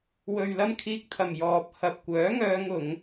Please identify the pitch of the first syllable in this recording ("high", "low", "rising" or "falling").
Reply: low